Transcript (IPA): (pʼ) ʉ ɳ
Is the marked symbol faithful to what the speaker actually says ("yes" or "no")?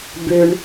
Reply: no